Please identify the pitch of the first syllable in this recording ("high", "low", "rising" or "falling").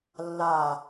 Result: low